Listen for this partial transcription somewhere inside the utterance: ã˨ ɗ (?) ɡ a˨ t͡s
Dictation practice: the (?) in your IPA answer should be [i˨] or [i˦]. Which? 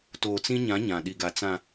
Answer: i˨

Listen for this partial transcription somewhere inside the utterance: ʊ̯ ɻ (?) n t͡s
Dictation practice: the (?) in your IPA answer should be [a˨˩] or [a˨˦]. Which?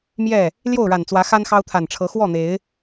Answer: a˨˩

